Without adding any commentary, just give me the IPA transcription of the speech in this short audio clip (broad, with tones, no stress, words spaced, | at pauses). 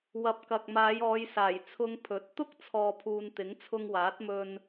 wɐ˨˥p̚kɐ˨k̚maː˨˧j ɔː˨˧jsaː˨˩j t͡sʰʊ˧ŋ pʰɵ˨˥t̚ t̪ʊ˥k̚t͡sʰɔː˨pʰuː˨n t̪ɪ˨˥ŋt͡sʰʊ˧ŋwaː˨˥t̚mɵ˧n